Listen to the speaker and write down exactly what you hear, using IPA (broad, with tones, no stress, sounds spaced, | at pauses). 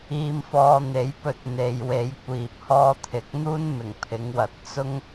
iː˧ m f ɔː˧ n̪ e˨˥ j p ɵ˧ t̚ n̪ e˨ j w e˨˧ j kʷ iː˨ p̚ h ɔː˧ t̪ʰ ɪ˨˥ k̚ n̪ uː˥ n m ɪ˨˩ ŋ pʰ ɪ˨˧ ŋ w ɐ˨˥ t̚ t͡s ʊ˥ ŋ